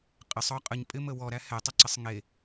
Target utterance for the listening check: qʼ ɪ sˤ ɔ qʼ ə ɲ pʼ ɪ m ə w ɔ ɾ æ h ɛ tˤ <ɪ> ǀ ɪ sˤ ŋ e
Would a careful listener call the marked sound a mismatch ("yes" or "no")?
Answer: yes